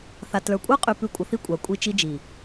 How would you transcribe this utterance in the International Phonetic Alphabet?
θ a˨ t l ə˞˨ kʷʼ ə˞˦ qʼ y˨ p ʉ˨ kʷʼ ə˨ θ i˦ kʷʼ a˨ kʷʼ i˦ t͡ʃ i˦ d͡ʒ i˨

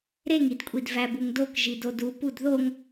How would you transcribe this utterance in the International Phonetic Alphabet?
ɾ e ŋ i d kʷʼ i d v æ b u ŋ d o k ʒ i d o d u p u d ð o ŋ

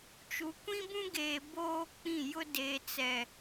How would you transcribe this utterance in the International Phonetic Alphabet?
t͡ʃ u˨ kʷ ĩ˦ b ũ˦ ɡ eː˨ b oː˦ k͡p ĩ˦˨ j ʊ˦ d e˨ t͡s ɛ˨

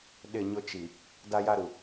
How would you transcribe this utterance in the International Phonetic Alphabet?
ɗ ɪ˦˨ ɲ ʊ˦ t͡ʃ i˨ | d a˦ j a˦ ɾ u˨

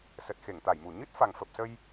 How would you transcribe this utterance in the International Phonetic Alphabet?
s ə˨˩ t̚ x e˧˩ ŋ t̪ a˧˩ j m u˧˩ ɲ ɨ˦˥ t̚ f a˨˩ ŋ f ə˨˩ p̚ s ə˧ j

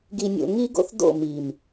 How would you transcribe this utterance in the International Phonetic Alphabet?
ɡ i˨ nʲ o̰˨ ŋ i˦ ɡ o̰˦ θ d o̰˦˨ m i˨ m

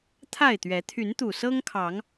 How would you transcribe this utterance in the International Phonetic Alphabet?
t̪ʰ a˥˨ ɪ̯ t̪ ɥ ɛ˨˦ t̪ʰ y˨˦ n t̪ u˨˩ s ɤ˦ ŋ kʰ ɑ˨˦ ŋ

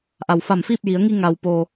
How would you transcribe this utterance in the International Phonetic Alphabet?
ʔ a˩ w f a˧˩ m f i˥˨ p̚ j i˩˧ ə̯ ŋ i˧ ŋ a˩ w p oː˩

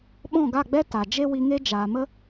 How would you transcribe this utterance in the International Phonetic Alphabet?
ɓ ɔ̃˦˨ ɡ a˦˨ ɡ͡b ɛ˦ t a˨ d͡ʒ e˦ w i˧ ŋ e˦ d͡ʒ aː˨ m ə˦

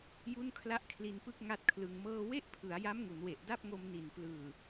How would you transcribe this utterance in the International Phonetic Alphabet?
j u˥˩ n kʰ l a˥˩ ʔ kʰ l i˧ n p ɯ˥˩ k̚ ŋ a˥˩ t̚ kʰ l ɯ˧ ŋ m ɤː˥˩ w e˥˩ ʔ pʰ ɯ˩˦ a̯ j a˦˥ m ŋ u˩˦ n w e˨˩ ʔ d a˥˩ p̚ ŋ o˧ m n i˨˩ n p l ɯː˨˩

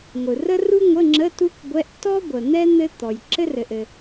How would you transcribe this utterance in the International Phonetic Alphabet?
ŋʷ ɯ˩ r ə˥ r u˥ ŋʷ ə˧˥˧ ŋ͡ǁ ə˧˥˧ t u˥ k ɡʷ ɛ˧˥˧ ʔ t ɔ˥ ɡʷ ə˩ n̪ ɛ˥ n̪ ɘ˥ t̪ ɔ˩ j ǁ ɘ˥ r ɘ˩ ʔ ɘ˩

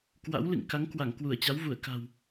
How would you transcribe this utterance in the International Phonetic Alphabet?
k w a̰˧˥ w l ɨ̰˧˨ ŋ k a˨˦ ŋ k w a˧˩ ŋ k w u˧˩ ə̯ t͡ɕ a˨˦ w v u˧˩ ə̯ k a̤˨˩ w

